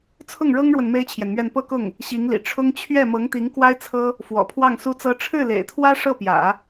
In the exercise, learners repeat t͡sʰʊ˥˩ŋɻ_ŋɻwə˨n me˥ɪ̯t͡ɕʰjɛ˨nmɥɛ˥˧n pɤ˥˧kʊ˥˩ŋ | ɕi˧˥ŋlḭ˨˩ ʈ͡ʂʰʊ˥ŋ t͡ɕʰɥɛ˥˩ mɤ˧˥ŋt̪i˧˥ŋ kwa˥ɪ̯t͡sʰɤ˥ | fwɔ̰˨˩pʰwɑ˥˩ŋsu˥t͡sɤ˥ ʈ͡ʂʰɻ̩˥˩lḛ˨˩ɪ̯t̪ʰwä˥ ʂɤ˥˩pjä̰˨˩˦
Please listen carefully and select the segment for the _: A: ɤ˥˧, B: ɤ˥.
B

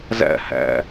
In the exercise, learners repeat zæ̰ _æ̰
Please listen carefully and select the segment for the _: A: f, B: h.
B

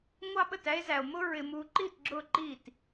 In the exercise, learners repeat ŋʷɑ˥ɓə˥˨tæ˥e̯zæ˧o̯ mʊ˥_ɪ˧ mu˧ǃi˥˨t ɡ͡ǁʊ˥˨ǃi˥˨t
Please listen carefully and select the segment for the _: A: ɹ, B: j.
A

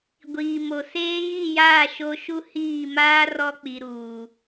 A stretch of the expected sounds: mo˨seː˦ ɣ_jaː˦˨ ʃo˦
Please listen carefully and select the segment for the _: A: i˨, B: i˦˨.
B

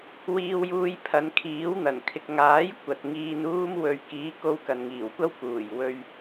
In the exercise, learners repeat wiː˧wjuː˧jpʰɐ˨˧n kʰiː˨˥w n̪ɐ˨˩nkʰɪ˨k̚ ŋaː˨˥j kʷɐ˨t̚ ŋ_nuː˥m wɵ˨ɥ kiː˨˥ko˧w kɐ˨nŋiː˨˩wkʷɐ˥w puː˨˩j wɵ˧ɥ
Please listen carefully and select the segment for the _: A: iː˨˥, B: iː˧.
B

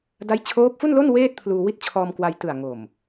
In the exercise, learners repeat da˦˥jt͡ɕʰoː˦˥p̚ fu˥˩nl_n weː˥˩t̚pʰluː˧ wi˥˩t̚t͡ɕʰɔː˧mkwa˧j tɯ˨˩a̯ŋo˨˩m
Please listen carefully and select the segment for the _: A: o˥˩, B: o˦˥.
A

